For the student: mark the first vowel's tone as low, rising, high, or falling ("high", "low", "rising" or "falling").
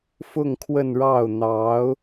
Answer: falling